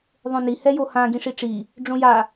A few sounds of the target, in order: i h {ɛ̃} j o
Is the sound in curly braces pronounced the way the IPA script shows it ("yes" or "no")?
no